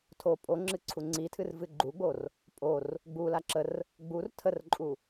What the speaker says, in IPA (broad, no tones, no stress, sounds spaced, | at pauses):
tʰ o pʼ o ŋ͡ǁ ɨ ǀʰ u ŋ͡ǀ i tʰ ɨ r v ɨ ɡ͡ǃ u ɡ͡b o r | pʼ o r | ɡ͡b u l a ǁ ə r | ɡ͡b u r tʰ ə r ǃʼ u